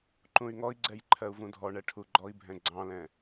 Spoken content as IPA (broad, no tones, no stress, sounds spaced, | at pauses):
ǃ ũ y̯ ŋ ɔ i̯ ɡ͡ǀ ɛ j ǃʰ ɜ u̯ v ũ dʱ ɔ ɳ ɛ ʈʰ u ɡ͡ǃ ɔ i̯ bʱ ɛ̃ ɡ͡ǀ ɑ̃ l ɛ̃